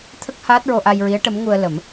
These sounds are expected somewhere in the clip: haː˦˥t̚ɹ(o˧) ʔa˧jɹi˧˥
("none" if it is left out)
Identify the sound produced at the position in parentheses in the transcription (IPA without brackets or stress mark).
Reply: o˧